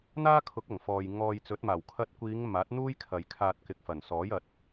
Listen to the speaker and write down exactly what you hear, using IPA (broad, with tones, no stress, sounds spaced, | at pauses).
n̪ aː˥ kʰ ʊ˨˥ k̚ ɐ˨˩ ŋ f ɔː˨ j ŋ ɔː˧ j t͡s ɵ˨˥ t̚ m aː˨˩ w kʰ ɐ˧ t̚ kʷ iː˨˧ ŋ m aː˨˥ t̚ n̪ uː˥ j kʰ ɐ˨ j kʰ aː˧ t̚ k ɪ˨ k̚ f ɐ˨˩ n s ɔː˨˥ j ɐ˨˥ t̚